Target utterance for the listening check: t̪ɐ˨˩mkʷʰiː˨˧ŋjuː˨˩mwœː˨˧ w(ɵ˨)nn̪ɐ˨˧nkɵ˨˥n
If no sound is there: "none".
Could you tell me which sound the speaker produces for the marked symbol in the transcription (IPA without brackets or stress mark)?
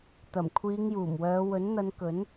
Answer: ɵ˨˥